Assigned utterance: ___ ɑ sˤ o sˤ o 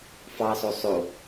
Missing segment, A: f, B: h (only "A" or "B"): A